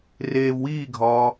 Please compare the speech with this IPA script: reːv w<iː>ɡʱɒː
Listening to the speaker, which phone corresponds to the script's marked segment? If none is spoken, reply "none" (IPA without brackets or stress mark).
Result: iː